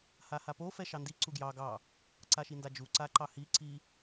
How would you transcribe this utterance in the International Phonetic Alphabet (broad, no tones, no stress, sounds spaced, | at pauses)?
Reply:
h a h a p o f ɛ ʃ ɑ n d i ǀ u ɡ j ɑ ɡ ɑ | ǀ a ʃ i n d a d͡ʒ u ǀ a ǃ ɑ h i ǀ i